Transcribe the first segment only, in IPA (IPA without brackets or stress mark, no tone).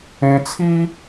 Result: ẽ